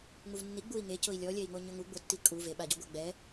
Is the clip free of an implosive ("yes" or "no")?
no